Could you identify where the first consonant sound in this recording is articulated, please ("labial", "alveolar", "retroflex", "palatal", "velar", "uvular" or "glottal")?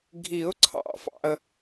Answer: velar